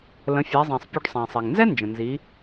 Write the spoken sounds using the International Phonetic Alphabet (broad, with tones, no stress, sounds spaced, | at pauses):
l ə̃˩˧ fʲ æ˩˧ zˤ æ̃˩ sˤ pʲ u˧ ɖ sˤ æ̃˩ sˤ ɛ˩ ŋ n z ɛ˥ n d͡ʒ ə̃˩ n z i˩˧